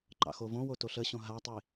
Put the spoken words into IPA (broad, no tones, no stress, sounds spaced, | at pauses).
ǃ ɑ̰ x o v õ w o t o ɬ ə ɕ õ ɦ a tˤ i